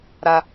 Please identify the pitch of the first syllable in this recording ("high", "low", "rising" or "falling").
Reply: low